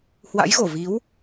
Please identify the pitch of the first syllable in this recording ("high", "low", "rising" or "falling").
rising